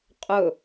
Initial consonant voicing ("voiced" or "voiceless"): voiceless